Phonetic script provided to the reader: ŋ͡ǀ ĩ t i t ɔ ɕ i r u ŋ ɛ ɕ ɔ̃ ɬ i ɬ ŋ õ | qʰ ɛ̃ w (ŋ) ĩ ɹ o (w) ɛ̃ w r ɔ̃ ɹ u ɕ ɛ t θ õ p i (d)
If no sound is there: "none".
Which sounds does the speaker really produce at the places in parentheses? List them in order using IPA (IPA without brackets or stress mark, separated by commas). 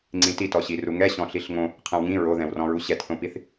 ŋ, ð, θ